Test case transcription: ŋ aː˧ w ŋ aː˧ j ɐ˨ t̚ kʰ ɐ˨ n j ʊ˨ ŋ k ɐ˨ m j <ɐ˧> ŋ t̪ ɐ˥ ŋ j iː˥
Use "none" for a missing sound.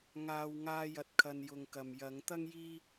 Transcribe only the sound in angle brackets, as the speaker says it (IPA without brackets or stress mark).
ɐ˨˧